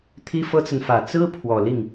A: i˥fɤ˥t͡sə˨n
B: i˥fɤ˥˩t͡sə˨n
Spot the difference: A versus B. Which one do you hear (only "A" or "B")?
A